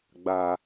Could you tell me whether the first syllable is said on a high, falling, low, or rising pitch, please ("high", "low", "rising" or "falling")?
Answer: low